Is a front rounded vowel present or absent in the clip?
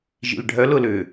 present